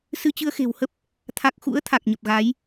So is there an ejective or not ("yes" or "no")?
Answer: no